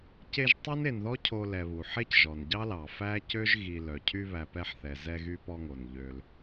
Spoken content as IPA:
ce˦ʒtˤo˥ne˨nðɔ˥ cʰo˦lɛ˨βu˩ ħe˥cʒɔ˩nɟɑ˥lɑ˩ fæ˥cø˥ʒɣi˨ lœ˩cʰy˦βæ˨ pɛ˦ħθɛ˨zɛ˦ ɣy˦pɔ˦ŋo˩nʎø˨l

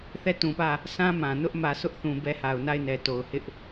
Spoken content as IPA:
θɛ˦˨tũ˨pä˦˨ | sã˦ mã˨ nʊ˦ʔmä˨sʊ˦ʔ θũ˨bɛ˦ha˨ʊ̯ na˦˨ɪ̯nɛ˨ to˨ʊ̯hɪ˦ʔ

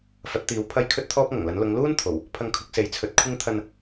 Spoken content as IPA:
fɐ˨˥t̚t̪iː˨˥w pʰɐ˥j kʰɵ˥t̚t̪ʰɔː˥p̚ŋɐ˨˩ŋlɐ˨˥n lʊ˨˧ŋluː˥n t̪ʰo˨˩w | pʰɐ˧ŋkʰʊ˨˥k̚se˨˥j t͡sʰɵ˨˥t̚ kʷʰɪ˥ŋ t̪ʰɐ˧n

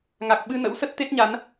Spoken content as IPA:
ŋa˨˩k̚ɓɨ˧nə̰˧˥wsə˦˥t̚ t̪e˦˥t̚ɲa˨˦n

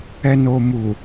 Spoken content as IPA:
ɛ˨no˨mu˨

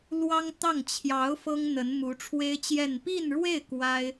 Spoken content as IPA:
lwɑ˥ŋt̪ɑ˥˩ŋ t͡ɕʰjɑ˧˥ʊ̯ fɤ˥ŋn̪ə˧˥nmu˧˥ ʈ͡ʂʰwe˥ɪ̯t͡ɕjɛ˥˧n pi˥˧nɻwe˥˩ɪ̯ kwa˥ɪ̯

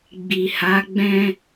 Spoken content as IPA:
ɡ͡bi˨ha˨˦ ɡ͡bɛ̃˦

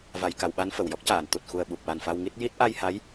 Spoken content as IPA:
va˨˩˨jka˨˩˨w ɓa˧˥nfə˨˩˨wjɔ˦˥k̚caː˨˩˨n t̪u˨˩t̚xu˨˩ə̯ɓu˨˩p̚wa˨˩n fa˧wŋi˦˥t̚ ji˦˥t̚ ʔa˧jha˧˥j

